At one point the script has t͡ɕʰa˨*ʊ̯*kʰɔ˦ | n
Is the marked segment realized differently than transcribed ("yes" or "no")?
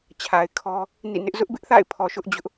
yes